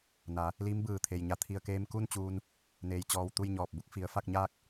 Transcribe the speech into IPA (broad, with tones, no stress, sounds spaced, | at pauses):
n a˩˧ | l iː˧˥ m b ɯː˧˩ t̪ʰ e˩ j ɲ a˧˩ t̪ʰ i˧˩ ə̯ k eː˧ m k u˥˨ n t͡ɕ uː˧ n | n eː˩ j t͡ɕ ɔː˧˩ w t̪ u˥˨ j ɲ ɔː˧˩ p̚ b u˧˥ k̚ f i˩˧ ə̯ f a˥˨ k̚ ɲ aː˥˨ k̚